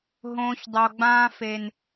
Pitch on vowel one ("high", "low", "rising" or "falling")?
low